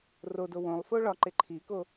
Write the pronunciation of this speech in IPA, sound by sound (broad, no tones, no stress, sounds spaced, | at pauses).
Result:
r o d o w õ lˠ f o ɭ ɒ ǃ e ǃʰ i k o